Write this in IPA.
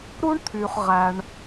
ɾu˥ɳ t̪ʰy˩χʁæ˩ɳ

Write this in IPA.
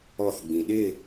ɔθɡ͡bĩ ɗɪ

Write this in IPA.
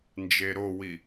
nd͡ʒeɾowi

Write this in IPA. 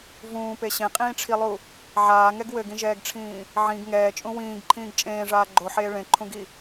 vũːpe ɕẽqʼĩːʈ͡ʂʰilˠu | ʕaːŋɛɡ wɘɡĩʒɛːɡʈ͡ʂʰĩː | ʕĩɡ ŋɛːt͡ʃʼũ wĩːɡǃʰĩːɡ t͡ʃʼẽːʐaː ɡ͡ǃoħeː ɭẽǃʰũɡi

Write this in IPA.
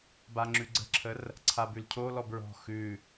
baŋ͡ǁʉɡ͡ǀə̤ǁʰər | ǀʰabʉlcʰolɔ bɹɔ̤ xʉ

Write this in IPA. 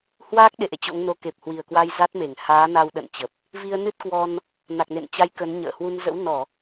hwaː˦˥k̚ɗe˧˩ ʔḛ˧˨t͡ɕo̰˧˥ŋno˨˦ ke˨˩p̚ hwi˨˩ə̯kwa˧j za˦˥t̚me˧˩ŋ haː˨˦na˧wɗə̰˧˨n t͡ɕə˨˩p̚ | vi˧ə̯nɨ˦˥t̚kwɔ˧n | na˨˩k̚nḛ˧˨nt͡ɕa˨˦j kə˨˦n ɲə̰ː˧˨hwu˧n zə̰˧˥wnɔ˧˩˨

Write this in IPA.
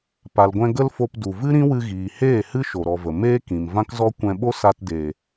pa˨lɡʷɛ̃˧ ɡə˦lfo˧pdu˨ vɨ˦ɾĩ˦wɨ˧ɣiː˨ heː˦˨hɨ˦ ʃo˨ɾɔ˨və˨ meː˦kĩ˨m vã˦kzɔ˦ kʷɛ̃˧ɓo˦sa˧tdeː˨

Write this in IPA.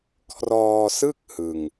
kʰrɔː˧sɯ˥˩k̚ hɯ˧ŋ

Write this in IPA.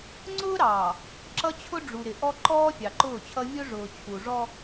ŋ͡ǀʊː˦ɾɑː˨ | ǁʌ˦t͡ɕʰʊ˦ɖ͡ʐu˨ ɾɪ˨ʔɔ˦ǃɔː˦ fʲɑ˨ǃʊː˦˨t͡ɕʰʌ˦ vʲʊ˦ʐʊː˨ t͡ɕʰu˨ʐɔ˦

